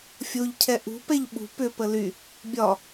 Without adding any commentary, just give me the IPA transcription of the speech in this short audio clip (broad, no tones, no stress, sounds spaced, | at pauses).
fʲ o ʎ cʰ ɛ ʔ ṳ p ɛ ʎ ɓ ṳ p ʏ p ə l y | bʲ ɒ